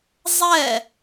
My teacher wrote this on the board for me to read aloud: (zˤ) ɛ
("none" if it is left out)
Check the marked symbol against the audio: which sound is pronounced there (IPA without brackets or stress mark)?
zˤ